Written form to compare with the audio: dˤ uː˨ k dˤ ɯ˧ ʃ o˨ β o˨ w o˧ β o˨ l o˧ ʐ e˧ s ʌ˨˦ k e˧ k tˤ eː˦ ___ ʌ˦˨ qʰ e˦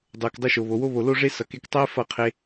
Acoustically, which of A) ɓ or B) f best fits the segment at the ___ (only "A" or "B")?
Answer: B